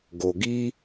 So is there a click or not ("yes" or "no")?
no